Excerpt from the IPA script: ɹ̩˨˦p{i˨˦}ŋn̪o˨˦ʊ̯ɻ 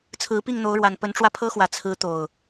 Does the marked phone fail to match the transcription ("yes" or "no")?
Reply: yes